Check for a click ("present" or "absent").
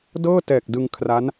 absent